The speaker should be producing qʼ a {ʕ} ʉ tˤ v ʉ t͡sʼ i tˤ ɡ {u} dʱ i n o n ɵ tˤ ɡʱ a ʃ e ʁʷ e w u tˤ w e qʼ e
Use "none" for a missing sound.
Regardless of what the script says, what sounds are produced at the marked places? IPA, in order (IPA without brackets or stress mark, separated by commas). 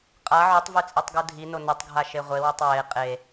ʕ, u